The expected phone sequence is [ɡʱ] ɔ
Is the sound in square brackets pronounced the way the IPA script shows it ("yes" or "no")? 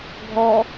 yes